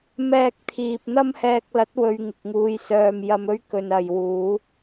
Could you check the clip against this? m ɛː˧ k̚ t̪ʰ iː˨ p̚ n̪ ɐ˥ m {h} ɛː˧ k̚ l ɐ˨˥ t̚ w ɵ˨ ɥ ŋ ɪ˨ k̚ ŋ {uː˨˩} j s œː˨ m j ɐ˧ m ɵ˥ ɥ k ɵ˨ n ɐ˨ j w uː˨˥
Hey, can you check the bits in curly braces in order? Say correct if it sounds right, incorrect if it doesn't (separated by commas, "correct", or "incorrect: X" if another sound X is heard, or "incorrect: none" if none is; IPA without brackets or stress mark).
correct, incorrect: uː˨˧